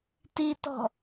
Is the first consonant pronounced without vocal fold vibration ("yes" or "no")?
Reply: yes